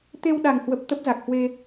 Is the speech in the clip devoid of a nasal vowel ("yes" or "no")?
yes